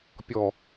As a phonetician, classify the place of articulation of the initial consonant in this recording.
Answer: labial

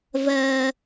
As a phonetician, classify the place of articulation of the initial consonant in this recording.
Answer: labial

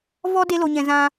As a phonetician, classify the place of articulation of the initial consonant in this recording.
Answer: labial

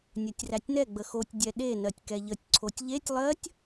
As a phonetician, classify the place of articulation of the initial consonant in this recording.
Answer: alveolar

